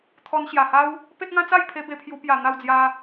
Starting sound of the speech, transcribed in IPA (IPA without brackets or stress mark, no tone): t̪ʰ